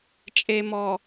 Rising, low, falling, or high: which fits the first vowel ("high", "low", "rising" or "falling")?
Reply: low